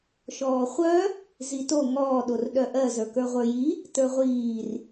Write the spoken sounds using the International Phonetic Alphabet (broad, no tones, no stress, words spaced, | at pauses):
ʃɔːχʷœ | zito ŋɔː ɗorɗœʔɜ zə˞kə˞ʁʷə˞ji | tə˞ʁʷiːr